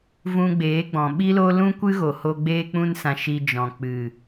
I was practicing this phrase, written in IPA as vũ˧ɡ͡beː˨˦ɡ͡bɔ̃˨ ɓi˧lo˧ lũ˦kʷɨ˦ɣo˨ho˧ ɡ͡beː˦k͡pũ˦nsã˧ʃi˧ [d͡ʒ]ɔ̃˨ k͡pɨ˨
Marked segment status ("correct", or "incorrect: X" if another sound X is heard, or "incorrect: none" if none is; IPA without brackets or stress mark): correct